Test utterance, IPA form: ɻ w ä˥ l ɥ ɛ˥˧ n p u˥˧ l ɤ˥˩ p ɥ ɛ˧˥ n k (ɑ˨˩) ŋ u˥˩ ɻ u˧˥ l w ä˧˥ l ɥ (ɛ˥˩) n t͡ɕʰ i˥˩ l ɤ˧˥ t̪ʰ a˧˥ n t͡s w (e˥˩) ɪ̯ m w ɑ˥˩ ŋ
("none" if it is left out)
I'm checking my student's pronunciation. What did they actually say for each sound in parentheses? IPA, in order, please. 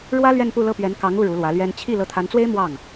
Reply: ɑ˧˥, ɛ˥, e˥

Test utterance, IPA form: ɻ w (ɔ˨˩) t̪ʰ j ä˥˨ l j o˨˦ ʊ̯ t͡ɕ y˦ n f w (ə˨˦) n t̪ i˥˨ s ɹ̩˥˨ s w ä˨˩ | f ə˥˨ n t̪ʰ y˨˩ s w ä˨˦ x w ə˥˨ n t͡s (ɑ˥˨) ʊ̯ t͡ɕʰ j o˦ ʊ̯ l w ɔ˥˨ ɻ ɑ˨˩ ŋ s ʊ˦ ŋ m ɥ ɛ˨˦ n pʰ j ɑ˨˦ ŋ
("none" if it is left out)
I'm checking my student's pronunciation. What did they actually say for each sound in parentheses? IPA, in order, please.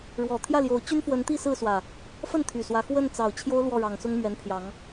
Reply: ɔ˨˩, ə˨˦, ɑ˨˩

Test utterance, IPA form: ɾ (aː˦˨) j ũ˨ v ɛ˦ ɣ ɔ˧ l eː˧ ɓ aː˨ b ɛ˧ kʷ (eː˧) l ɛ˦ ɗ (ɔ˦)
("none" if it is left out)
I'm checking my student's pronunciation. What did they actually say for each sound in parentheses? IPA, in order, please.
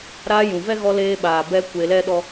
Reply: aː˧, eː˧, ɔ˦

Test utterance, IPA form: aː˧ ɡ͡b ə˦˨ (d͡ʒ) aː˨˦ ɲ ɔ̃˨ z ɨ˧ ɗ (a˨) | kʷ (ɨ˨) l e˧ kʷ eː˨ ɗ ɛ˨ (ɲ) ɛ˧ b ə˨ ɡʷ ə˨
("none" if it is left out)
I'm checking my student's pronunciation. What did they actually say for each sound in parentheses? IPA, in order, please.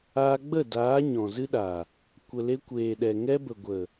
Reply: d, a˨, ə˨, ŋ

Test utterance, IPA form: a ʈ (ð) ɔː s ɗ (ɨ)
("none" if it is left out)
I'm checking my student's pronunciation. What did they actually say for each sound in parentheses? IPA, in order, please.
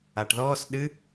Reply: ð, ɨ

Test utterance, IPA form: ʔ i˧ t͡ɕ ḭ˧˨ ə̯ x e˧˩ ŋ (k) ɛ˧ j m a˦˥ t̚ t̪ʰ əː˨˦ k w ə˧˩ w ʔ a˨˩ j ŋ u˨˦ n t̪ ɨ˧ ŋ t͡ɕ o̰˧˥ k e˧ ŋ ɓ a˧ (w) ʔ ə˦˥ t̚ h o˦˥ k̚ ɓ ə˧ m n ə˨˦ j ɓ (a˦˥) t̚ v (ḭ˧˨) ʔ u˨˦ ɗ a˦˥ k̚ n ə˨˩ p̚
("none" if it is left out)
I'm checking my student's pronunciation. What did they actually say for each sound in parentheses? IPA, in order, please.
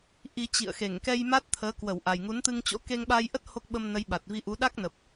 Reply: k, j, a˨˩, i˧

